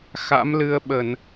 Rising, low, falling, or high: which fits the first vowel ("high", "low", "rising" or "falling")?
rising